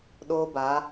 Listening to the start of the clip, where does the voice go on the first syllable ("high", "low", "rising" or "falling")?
high